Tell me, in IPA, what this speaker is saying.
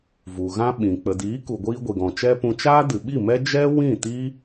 v u˨ ɣ ã˦ ɓ ĩ˨ k͡p ə˨ d iː˨˦ k u˨ ɡʷ iː˧ ɡʷ i˨ ɡ ɔ̃˨ t͡ʃ ɛ˦ p ũ˧ t͡ʃ aː˦ d ɨ˨ ɓ i˦˨ m ɛ˦ d͡ʒ ɛ˦ w ĩ˦˨ t iː˦

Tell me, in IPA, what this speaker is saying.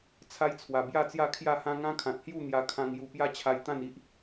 t͡sʰ a˦ j t͡sʰ w a˨˩ b j a˥˧ t͡s j a˥˧ kʰ j a˥˧ h ã˦ ŋ ã˦ kʰ ã˨ t̚ h j u˥˧ n̪ j a˧ kʰ ã˧ ŋ j u˨˩ p j a˧ t͡ɕʰ a˨˩ j t̪ ã˥˧ n i˦ ʔ

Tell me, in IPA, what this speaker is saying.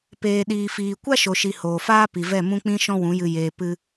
p eː˨ ɗ iː˨ f iː˨ kʷ a˦ ʃ o˨ ʃ i˨ h oː˨ f aː˦ p i˨ v ɛ˦˨ m ũ˦ k͡p ĩ˦ ʃ ɔ̃˦ w ũ˨˦ j ɨ˧ j eː˧ p ɨ˦

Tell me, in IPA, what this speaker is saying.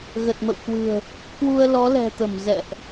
ɣ ə˨˩ t̚ m ə̰˧˨ w k w ɨ̤˨˩ ə̯ | k w u˧ ə̯ l ɔ˨˦ l ɛ̤˨˩ t̪ ə˧˩ m z ɛ̰˧˨ ʔ

